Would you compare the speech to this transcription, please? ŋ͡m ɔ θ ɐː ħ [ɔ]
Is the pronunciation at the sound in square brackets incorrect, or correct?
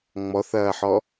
correct